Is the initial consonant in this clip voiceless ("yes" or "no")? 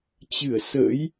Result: yes